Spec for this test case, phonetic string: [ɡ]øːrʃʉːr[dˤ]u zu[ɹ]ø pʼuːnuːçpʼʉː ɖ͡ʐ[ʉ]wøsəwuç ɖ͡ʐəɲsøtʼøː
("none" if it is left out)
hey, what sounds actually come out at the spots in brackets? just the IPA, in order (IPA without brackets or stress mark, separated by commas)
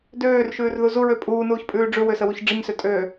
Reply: d, ð, ɹ, ʉ